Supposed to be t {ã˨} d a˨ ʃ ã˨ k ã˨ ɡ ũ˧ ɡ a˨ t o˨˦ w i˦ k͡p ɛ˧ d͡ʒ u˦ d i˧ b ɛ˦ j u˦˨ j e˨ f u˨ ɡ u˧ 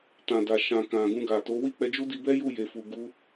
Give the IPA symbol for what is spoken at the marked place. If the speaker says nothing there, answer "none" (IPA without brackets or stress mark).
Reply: ã˨